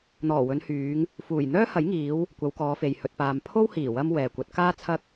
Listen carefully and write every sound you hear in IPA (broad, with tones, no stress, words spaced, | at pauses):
n̪ɔː˨˩wɵ˨˧nhyː˨˧ŋ | fuː˨˩j n̪œː˥hɐ˨˥j ŋiː˨˧w | kʷɐ˨˧wkɔː˨˧fe˨j hɵ˨t̚paː˨mpʰo˥whiː˨˩ wɐ˧m wɛː˨kʷɐ˨˥t̚ kaː˥ t͡sʰɐ˥k̚